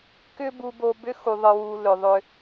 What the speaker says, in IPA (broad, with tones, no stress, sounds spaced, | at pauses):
k ʏ˦ b u˧ b o˧ b ʏ˧ x u˨ ðˤ ɨ˨ w u˨ l ʏ˨ ðˤ ʏ˧